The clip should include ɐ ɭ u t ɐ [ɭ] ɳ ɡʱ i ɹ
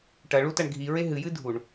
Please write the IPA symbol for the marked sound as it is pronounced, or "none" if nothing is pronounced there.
none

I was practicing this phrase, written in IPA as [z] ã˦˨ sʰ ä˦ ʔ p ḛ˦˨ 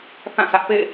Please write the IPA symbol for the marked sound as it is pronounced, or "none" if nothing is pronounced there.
θ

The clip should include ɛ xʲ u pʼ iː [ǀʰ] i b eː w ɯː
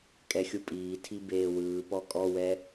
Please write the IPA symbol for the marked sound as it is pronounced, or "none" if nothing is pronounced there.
tʰ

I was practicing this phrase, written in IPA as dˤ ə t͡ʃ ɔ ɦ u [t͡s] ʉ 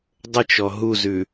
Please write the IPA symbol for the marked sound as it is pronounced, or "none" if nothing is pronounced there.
z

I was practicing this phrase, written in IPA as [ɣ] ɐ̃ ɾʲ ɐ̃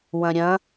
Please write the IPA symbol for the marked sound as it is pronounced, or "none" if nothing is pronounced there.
w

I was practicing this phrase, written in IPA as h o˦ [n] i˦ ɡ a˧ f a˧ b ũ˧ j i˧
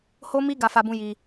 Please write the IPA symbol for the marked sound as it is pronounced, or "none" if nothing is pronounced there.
m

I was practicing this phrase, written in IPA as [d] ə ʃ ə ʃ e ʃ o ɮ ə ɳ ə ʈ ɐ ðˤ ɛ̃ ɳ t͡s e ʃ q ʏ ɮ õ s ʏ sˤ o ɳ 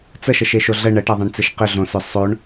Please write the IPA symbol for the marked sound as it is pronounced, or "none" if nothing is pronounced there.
t͡s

